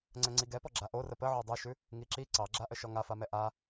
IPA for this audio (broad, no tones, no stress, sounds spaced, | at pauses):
ŋ͡ǀ ɛ ŋ͡ǀ i ɡ ɛ p ɔ ɡ͡ǁ a ʔ o r ə p ə ʕ o dˤ ʉ ʃ ʉ | ŋ i ǁ i ǀ ɑ ɡ͡ǁ a ʔ ə ʃ ɔ ŋ a f a m ɛ ʔ a